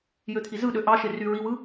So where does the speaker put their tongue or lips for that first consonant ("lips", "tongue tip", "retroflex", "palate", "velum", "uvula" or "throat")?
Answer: palate